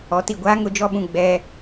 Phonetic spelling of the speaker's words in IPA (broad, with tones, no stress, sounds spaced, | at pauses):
ɔ˨˦ t i˨ ɡʷ aː˦ ŋ ʊ˦˨ d͡ʒ ɔ˦ ɓ ũ˨ ɡ͡b ɛ˦